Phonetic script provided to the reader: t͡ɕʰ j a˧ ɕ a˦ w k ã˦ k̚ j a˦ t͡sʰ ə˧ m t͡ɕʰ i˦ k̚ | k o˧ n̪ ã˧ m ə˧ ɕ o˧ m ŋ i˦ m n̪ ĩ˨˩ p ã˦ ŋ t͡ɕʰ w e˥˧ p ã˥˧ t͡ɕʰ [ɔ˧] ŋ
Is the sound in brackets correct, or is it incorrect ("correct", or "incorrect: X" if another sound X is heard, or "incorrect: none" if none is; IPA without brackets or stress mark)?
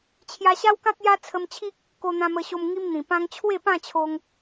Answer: incorrect: o˧